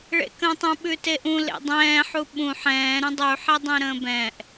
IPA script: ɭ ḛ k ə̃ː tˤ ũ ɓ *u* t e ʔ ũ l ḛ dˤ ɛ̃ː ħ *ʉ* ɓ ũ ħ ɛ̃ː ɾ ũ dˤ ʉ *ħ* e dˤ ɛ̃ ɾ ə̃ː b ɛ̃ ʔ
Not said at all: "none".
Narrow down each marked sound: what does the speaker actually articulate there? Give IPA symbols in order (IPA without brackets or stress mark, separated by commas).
ʉ, u, ħ